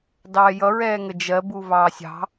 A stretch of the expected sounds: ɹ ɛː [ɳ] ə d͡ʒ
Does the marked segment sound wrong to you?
yes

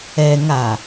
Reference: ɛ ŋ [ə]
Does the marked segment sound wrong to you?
yes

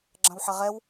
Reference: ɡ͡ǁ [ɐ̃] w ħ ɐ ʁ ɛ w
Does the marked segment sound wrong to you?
no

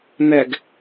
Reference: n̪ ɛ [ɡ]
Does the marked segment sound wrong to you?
no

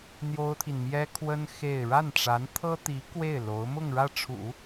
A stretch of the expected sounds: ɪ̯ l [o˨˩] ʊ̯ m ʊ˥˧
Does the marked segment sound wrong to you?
yes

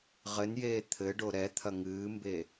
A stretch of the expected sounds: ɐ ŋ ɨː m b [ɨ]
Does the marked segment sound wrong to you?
yes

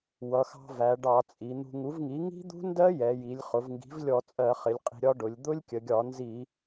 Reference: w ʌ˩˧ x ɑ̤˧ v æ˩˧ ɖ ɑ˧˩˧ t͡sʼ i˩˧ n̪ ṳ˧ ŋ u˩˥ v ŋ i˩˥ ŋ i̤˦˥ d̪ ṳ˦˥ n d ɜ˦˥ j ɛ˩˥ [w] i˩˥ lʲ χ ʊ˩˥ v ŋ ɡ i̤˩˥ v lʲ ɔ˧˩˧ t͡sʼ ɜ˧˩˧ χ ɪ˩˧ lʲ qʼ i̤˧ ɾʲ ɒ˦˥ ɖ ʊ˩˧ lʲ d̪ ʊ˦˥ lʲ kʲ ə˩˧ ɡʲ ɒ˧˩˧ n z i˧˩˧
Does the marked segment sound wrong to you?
yes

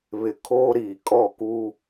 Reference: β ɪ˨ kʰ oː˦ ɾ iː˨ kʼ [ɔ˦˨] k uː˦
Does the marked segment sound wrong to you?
no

